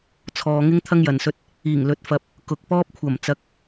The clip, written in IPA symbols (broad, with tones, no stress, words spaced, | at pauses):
t͡sʰɔː˨ŋɪ˥ŋ t̪ʰɐ˥ŋjɐ˨nsɵ˧t̚ | iː˨˩ŋlɵ˨˥t̚fɐ˨p̚ | kʊ˨k̚pɔː˥p̚kʷʰɐ˨˩m t͡sɐ˨˥k̚